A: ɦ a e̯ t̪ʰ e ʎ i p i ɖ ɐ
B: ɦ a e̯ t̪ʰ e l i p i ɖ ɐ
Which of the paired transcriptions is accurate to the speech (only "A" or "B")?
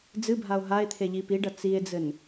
A